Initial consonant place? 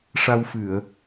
retroflex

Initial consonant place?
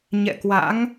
palatal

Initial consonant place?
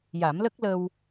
palatal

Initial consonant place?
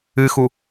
velar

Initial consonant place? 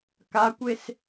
velar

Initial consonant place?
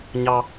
palatal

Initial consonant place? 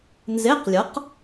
alveolar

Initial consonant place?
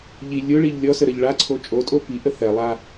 palatal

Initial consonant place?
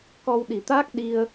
velar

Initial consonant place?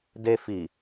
alveolar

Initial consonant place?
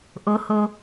glottal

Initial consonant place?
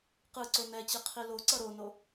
uvular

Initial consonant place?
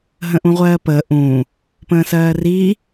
glottal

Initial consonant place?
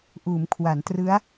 glottal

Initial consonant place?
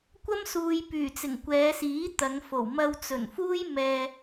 velar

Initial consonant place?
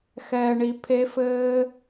velar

